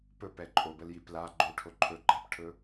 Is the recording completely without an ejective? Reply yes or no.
no